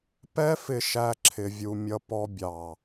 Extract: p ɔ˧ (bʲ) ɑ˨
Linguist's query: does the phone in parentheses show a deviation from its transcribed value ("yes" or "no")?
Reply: no